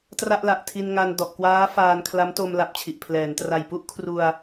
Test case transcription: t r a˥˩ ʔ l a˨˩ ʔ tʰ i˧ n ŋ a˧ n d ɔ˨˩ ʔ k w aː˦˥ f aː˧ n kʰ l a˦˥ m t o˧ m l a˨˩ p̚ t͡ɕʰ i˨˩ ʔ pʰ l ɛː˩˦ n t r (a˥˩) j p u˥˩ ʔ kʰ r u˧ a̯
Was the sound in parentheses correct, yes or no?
no